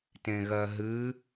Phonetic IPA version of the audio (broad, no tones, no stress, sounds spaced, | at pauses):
t ẽ ɣ ɜ ɦ ɨ